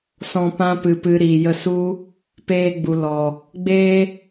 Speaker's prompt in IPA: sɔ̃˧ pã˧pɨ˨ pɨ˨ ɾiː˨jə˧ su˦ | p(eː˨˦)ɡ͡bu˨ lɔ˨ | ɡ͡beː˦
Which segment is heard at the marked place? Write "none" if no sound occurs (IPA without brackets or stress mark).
eː˧